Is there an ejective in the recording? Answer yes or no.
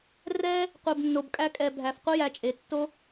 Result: yes